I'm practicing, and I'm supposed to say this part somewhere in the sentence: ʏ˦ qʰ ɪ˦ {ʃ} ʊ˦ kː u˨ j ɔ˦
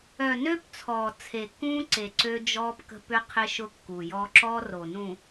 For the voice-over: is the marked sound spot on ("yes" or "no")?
yes